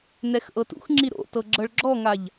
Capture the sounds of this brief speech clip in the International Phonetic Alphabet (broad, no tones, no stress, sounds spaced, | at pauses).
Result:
n ɛ x ʔ ɤ t ṵ x ŋ͡ǁ i ɾ o̰ t ɤ ɡ͡ǁ ɤ ɭ ɡ͡ǁ ɔ ŋ a ʎ